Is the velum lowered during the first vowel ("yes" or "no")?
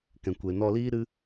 yes